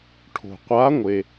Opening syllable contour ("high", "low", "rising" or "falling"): low